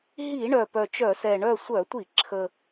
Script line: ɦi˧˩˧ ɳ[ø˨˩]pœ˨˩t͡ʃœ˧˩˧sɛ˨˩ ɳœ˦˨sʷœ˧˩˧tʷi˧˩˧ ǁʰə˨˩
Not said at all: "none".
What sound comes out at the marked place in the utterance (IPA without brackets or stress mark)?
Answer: œ˨˩